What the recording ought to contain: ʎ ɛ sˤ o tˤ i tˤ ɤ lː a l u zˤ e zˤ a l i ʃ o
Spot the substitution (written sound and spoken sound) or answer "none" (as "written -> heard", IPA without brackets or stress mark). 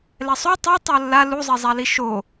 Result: ʎ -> l